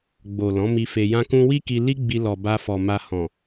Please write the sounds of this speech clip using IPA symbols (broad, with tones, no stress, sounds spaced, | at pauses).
ɡ͡b o˨ l ɔ̃˨˦ m i˧ f e˧ j ã˦ k ũ˦ w i˦ k i˧ l i˦ ɡ͡b i˧ l ɔ˨ b a˧ f ɔ˨ m a˧ h ɔ̃˨